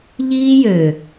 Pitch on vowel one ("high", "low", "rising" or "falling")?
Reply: high